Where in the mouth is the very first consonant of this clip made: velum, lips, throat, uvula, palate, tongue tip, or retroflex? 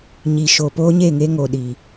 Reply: palate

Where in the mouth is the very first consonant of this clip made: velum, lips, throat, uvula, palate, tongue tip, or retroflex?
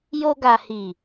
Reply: palate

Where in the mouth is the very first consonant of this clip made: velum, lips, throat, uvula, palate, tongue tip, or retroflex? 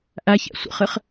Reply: throat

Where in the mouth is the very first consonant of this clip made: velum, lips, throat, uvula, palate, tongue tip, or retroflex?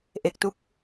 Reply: throat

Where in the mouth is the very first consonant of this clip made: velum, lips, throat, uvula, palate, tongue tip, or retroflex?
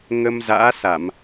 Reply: velum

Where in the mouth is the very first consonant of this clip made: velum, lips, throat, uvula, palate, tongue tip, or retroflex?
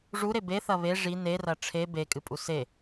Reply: retroflex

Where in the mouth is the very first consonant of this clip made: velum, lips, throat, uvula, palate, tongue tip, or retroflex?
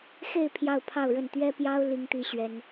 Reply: velum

